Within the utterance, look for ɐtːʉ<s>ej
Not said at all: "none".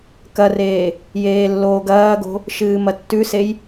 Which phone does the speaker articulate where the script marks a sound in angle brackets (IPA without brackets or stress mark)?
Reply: s